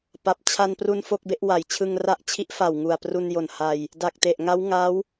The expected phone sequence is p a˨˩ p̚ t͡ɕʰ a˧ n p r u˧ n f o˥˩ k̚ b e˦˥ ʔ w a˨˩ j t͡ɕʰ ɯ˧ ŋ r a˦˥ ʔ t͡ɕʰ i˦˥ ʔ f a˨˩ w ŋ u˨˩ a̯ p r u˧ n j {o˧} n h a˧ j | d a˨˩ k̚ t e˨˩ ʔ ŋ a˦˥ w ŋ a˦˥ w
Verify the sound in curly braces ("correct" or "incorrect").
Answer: incorrect